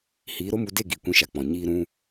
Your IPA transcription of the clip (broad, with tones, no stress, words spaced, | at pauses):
hiː˨˦ɾo˦mu˧de˦˨ ɡi˨ kʷĩ˧ʃa˨k͡pɔ̃˨ ɲiː˧ ɾũ˦